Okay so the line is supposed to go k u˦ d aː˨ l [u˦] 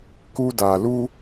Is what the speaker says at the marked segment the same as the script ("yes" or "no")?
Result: yes